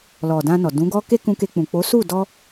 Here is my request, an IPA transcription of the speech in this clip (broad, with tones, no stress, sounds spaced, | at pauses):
l ɔ˨ d ã˧ n ɔ˨ d ũ˨˦ ɡ ɔ˦ k e˦ k ũ˧ k e˧ k͡p ũ˨ k͡p o˨˦ s u˦˨ d ɔ˧